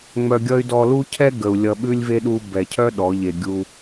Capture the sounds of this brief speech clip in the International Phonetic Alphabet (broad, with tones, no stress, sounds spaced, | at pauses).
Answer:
ŋ͡m œ˧ ɡʲ ʌ˦ y̯ d ɔ˧ l u˦ cʰ ɛ˦ ɡ ə˨ u̯ lʲ ʌ˧ ɓ ʉ˦ lʲ v e˦ ɗ u˧ b ɛ˨ cʰ œ˦ ɗ ɔ˨˦ ʎ e˧ ɡʲ u˦